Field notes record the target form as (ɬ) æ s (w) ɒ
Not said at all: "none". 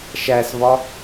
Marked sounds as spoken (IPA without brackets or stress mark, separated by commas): ʃ, v